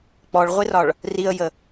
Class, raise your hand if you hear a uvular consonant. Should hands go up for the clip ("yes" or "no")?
yes